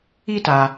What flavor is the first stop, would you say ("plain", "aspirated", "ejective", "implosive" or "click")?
plain